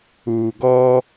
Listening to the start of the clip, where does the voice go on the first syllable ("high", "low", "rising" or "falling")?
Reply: low